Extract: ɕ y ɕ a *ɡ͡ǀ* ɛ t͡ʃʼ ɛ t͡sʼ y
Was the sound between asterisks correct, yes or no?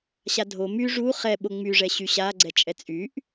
yes